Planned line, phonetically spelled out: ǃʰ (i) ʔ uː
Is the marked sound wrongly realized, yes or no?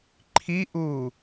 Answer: no